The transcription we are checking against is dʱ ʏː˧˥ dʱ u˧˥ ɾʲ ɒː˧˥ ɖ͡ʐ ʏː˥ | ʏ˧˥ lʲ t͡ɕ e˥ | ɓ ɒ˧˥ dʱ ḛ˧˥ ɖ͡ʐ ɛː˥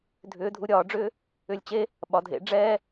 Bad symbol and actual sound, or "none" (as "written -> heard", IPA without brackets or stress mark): none